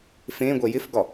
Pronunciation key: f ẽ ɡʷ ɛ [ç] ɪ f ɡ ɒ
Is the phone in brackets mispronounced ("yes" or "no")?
yes